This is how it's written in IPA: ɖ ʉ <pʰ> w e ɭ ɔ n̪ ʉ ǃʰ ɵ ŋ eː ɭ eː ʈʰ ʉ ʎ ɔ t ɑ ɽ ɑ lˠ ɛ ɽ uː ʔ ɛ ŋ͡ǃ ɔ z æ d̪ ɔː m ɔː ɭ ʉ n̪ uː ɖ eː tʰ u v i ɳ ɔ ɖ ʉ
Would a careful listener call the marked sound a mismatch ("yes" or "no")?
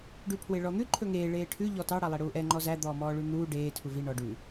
no